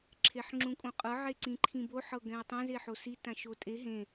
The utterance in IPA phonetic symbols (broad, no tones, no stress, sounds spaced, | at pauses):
ǁʰ e ħ ŋ͡ǁ ũ kʼ õ qʼ ɤ ʕ e ǀ ĩ ǃʰ ĩ b o ħ ɤ ɡ ɛ̃ ə̯ tˤ ɛ̃ z e ħ o s i t ã ʃ o tʼ e ɦ ẽ